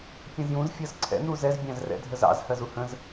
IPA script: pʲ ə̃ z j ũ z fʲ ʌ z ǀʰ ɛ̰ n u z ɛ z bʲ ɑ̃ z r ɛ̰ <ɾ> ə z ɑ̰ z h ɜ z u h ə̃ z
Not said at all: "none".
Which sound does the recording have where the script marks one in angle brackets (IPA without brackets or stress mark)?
dʱ